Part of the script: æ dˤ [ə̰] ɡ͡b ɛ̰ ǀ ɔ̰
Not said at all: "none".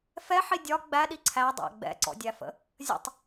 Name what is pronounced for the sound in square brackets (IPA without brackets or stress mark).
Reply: æ̰